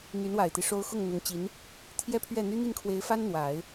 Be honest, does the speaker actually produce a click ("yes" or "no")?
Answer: no